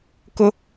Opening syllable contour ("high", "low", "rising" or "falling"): high